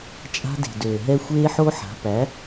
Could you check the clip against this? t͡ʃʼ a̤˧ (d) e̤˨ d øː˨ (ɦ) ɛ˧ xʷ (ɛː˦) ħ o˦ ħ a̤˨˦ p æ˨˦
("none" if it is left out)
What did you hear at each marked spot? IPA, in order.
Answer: d, ɦ, eː˦

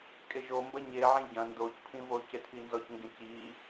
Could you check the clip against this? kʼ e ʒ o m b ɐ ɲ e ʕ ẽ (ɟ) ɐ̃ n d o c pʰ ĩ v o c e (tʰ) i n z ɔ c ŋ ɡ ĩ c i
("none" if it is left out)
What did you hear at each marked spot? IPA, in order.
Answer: ɟ, tʰ

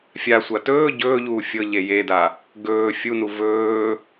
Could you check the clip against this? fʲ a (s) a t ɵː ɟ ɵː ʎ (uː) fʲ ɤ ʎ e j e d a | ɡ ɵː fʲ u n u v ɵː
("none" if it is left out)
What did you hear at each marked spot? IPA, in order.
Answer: sʷ, uː

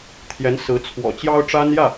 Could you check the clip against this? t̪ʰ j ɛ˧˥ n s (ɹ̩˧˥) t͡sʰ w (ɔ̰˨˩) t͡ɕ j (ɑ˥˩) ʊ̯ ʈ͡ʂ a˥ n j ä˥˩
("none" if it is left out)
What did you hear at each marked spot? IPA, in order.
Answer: ɹ̩˧˥, ɔ̰˨˩, ɑ˥

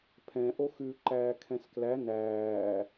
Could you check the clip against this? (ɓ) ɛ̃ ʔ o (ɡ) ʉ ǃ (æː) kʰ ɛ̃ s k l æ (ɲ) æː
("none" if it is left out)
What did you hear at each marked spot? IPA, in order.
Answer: pʰ, x, æː, n

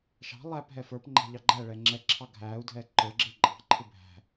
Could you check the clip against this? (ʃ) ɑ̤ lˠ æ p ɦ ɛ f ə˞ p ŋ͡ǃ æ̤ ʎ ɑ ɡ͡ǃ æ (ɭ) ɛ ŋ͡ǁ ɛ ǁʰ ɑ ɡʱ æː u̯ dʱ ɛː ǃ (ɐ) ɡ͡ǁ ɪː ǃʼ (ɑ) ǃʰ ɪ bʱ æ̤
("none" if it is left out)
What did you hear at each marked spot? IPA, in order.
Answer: ʃ, ɭ, ə˞, ɑ̤

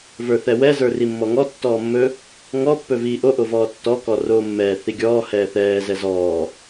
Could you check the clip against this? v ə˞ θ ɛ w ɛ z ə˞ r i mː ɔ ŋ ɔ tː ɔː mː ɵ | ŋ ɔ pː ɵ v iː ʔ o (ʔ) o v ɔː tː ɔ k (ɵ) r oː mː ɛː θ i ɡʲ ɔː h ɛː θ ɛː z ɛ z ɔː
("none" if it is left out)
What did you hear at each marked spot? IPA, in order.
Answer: ʔ, ɔ

